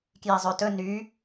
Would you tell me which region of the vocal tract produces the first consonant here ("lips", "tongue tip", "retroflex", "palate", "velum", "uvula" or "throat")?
velum